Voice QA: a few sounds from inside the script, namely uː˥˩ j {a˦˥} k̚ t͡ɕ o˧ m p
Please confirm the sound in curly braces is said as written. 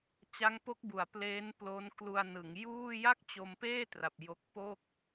no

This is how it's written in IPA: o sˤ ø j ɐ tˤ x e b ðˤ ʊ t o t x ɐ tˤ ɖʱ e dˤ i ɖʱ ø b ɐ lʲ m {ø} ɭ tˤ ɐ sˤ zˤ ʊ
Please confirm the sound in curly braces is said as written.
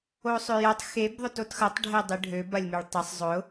no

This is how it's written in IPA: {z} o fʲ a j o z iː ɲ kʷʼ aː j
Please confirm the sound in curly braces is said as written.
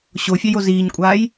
no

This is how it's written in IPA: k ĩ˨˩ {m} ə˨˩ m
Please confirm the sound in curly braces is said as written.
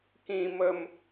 yes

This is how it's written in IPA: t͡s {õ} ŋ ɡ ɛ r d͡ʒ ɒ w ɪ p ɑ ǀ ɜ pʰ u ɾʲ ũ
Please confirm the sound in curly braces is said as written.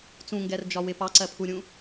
no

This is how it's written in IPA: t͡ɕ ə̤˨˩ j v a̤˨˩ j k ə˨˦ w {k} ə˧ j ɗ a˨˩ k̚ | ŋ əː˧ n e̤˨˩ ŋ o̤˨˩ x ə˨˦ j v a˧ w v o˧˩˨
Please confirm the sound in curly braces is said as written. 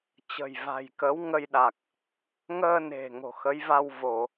no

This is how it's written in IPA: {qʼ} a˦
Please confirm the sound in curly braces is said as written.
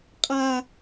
yes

